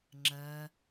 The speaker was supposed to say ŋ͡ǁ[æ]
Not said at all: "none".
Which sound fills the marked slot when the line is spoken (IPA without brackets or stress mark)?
ɜ